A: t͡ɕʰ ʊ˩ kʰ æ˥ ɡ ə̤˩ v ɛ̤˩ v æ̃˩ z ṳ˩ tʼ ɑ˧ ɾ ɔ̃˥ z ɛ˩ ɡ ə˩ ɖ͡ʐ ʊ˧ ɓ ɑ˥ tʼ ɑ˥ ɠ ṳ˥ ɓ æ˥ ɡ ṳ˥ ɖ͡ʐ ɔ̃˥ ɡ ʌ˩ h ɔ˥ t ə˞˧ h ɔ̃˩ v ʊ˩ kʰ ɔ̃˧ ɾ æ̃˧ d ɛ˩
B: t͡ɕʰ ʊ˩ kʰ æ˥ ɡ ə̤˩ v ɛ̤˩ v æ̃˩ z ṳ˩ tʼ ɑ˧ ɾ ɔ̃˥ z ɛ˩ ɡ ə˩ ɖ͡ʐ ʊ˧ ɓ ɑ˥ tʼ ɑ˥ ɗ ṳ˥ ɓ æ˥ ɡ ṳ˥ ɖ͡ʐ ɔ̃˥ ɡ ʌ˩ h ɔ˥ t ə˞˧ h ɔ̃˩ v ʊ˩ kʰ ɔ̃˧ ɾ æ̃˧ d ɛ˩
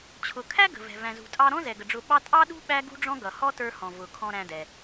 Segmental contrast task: B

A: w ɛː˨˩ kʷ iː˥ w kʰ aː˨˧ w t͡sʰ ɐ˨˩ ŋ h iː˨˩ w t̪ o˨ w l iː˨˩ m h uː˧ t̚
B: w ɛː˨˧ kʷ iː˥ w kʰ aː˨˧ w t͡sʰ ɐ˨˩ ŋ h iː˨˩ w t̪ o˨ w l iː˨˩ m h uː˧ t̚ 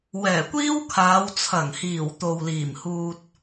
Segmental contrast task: A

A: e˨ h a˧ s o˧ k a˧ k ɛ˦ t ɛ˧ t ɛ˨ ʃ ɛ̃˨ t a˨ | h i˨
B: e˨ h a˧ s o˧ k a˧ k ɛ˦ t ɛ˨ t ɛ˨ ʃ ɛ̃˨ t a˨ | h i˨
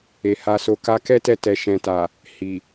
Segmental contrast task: A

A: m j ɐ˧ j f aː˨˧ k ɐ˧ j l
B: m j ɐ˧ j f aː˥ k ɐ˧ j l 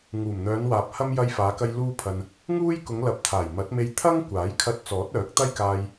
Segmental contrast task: A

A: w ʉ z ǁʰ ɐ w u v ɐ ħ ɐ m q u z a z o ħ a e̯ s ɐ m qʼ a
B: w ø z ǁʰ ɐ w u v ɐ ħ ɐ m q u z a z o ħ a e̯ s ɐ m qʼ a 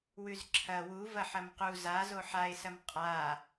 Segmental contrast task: A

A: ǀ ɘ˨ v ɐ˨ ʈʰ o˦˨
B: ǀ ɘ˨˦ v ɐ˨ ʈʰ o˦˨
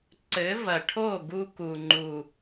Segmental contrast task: B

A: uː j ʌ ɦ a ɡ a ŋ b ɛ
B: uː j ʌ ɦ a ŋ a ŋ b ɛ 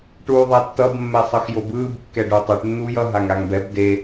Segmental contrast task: B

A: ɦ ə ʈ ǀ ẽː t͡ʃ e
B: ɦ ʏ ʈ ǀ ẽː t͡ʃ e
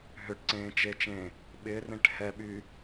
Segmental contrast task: B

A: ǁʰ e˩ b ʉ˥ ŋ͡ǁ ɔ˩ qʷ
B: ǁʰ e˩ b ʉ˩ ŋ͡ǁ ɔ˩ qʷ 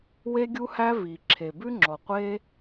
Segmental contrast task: A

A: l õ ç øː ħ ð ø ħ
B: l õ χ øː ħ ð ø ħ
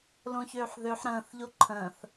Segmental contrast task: A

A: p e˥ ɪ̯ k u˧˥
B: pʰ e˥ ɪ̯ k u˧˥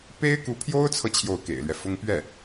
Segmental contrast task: A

